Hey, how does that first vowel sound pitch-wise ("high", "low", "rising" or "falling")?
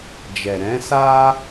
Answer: low